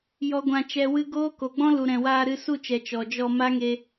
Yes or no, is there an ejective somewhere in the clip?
no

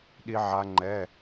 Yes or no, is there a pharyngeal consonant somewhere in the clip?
yes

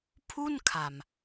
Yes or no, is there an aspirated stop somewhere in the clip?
yes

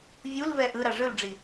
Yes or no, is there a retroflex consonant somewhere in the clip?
yes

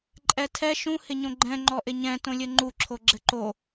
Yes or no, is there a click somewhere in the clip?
yes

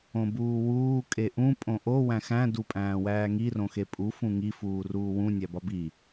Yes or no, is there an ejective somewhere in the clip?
yes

